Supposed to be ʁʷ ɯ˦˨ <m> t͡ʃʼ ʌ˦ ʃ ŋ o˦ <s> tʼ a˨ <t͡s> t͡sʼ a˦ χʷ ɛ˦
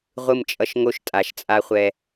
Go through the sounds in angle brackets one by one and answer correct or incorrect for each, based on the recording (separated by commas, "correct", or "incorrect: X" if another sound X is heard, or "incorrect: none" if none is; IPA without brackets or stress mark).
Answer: correct, incorrect: ʃ, incorrect: ʃ